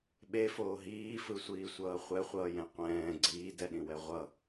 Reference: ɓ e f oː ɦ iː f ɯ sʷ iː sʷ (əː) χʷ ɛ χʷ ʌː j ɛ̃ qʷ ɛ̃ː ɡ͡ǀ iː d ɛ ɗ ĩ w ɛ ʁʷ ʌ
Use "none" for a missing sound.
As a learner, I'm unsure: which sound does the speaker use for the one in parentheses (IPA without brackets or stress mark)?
ʌː